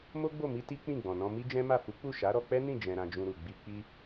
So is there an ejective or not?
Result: no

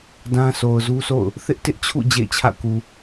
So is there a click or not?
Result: no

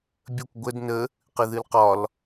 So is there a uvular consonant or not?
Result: yes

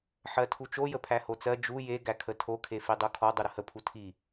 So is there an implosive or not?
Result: no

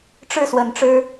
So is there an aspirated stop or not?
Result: no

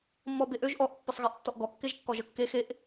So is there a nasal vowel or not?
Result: no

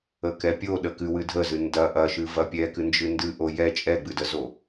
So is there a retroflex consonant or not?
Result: no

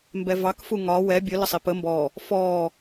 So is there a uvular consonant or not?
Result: no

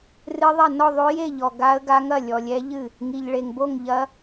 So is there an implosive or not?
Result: no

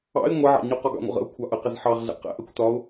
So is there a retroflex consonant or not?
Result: no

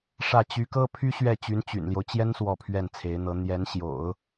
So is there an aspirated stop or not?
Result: yes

